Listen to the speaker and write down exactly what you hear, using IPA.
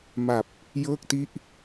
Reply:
m a˨˩ p̚ | j ɤː˥˩ k̚ t i˥˩ ʔ

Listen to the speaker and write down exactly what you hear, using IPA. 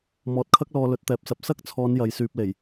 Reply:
m ɔː˨ t̚ kʰ ɐ˥ k̚ l ɔː˧ l ɵ˨˥ t̚ t̪ ɛː˨˥ p̚ s ɐ˨˥ p̚ s ɐ˥ k̚ t͡sʰ ɔː˨˧ n j ɐ˨˧ j s yː˧ p̚ l e˨˩ j

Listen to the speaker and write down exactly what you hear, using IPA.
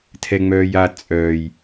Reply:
tʰ ɛ ŋ͡m œː j a t͡sʼ œː j

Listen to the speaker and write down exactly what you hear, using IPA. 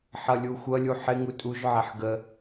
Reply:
ħ ʌ lʲ u xʷ ʌ lʲ u ħ ɪ ŋ u tʼ u ʒ ʕ ɛ ħ ɡ ə

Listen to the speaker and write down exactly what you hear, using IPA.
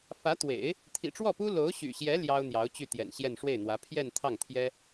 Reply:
f ä˧˥ t̪ w ḛ˨˩˦ ɪ̯ | t̪ʰ ḭ˨˩ ʈ͡ʂ w ɔ˥˩ p u˥ l o˧˥ ʊ̯ ɕ y̰˨˩ ɕ j ɛ˧˥ l j ɑ˥ ʊ̯ n̪ j ɑ˧˥ ʊ̯ t͡ɕ y˥˩ t̪ j ɛ̰˨˩ n ɕ j ɛ˥˧ n ʂ w e˥˩ ɪ̯ n̪ w ä˧˥ pʰ j ɛ˥˧ n t̪ʰ ɑ˥˩ ŋ t̪ʰ j ɛ˥

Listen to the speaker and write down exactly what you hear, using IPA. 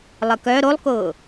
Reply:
lˠ ə k œ ɾ o lˠ k ʊː

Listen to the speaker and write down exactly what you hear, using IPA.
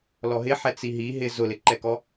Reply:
l ɔ ɦ ɪ ħ ɛ t͡s i ɦ i ɦ ɪ z ʊ l ɪ ǃ ɛ k ɔ

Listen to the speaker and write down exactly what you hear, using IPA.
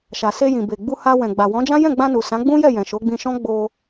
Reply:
ʃ a˨ s e˧ j ĩ˨ b e˨ ɡ͡b u˧ h a˧ w ɛ̃˨ ɡ͡b a˨ w ɔ̃˨˦ d͡ʒ ã˦ j ɛ̃˦˨ ɡ͡b ã˧ n u˨ s ã˨˦ ɡ͡b ũ˦ j ɛ˦˨ j ɛ̃˨ ʃ o˨˦ ɡ͡b ĩ˧ ʃ ɔ̃˦ ɡ͡b o˧

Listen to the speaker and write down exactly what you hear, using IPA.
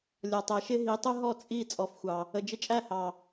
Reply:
lʲ ɒ˨ tˤ ɛ˨ ʃ ɪ˦ ɦ i˨˦ tˤ ʊ˦ ɦ ɔ˦˨ t͡sʼ i˦˨ t͡sʼ ɔ˨ f xʷ ɑ˨ | ə˨ d͡ʒ ɪ˧ t͡ʃʼ æ˦˨ h ɑ˨

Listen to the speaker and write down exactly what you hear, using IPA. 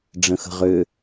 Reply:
ɖ͡ʐ ə̃ x ə̤ ʁ ʏ

